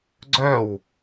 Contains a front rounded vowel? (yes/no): yes